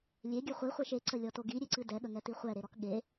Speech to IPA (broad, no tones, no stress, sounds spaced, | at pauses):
lʲ e ɡʲ ɨ χʷ i χʷ e ʃ e ǀ ə lʲ ɔ t o ɡ i ɾʲ e ǀ ɨ d ɛ ɠ ə ŋ ɛ t i χʷ ɛ ɾ e ɾ ɔ k ɠ e